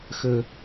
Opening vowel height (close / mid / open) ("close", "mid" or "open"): mid